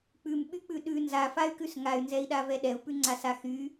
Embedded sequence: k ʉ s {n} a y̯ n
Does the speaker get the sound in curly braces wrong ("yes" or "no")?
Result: yes